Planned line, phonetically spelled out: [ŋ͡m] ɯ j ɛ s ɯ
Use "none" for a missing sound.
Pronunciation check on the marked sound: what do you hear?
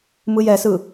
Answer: m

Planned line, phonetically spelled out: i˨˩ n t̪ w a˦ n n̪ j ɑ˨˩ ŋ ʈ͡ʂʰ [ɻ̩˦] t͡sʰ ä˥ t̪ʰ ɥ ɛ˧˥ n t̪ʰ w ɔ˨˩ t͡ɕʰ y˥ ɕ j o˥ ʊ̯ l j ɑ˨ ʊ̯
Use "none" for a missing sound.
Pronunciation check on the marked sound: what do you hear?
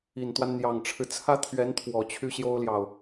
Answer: ɻ̩˦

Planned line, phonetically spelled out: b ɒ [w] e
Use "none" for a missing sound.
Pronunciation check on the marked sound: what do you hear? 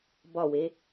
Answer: w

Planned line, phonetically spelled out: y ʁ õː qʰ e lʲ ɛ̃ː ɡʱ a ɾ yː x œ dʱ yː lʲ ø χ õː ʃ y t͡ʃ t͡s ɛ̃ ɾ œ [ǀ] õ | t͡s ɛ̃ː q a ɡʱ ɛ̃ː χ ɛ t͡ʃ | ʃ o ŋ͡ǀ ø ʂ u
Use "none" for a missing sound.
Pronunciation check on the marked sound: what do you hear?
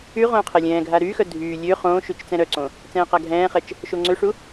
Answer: ǀ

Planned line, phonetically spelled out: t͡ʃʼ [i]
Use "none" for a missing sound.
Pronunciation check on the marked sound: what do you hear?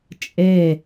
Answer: e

